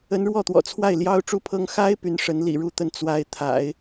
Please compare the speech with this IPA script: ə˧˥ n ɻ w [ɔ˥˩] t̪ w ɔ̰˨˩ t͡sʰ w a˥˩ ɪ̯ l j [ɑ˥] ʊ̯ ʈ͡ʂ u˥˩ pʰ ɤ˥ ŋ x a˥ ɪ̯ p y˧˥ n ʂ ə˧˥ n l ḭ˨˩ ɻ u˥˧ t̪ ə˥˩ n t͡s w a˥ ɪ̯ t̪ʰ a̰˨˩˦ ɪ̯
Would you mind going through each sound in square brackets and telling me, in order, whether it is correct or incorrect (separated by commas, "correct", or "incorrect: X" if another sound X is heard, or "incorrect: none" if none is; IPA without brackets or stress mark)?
correct, correct